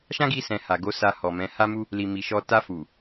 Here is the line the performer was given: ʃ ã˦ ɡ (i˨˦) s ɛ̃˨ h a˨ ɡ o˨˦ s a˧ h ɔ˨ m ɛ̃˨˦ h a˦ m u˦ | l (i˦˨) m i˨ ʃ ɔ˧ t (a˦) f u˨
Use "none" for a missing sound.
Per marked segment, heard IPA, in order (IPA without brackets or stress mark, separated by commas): i˧, i˨, a˧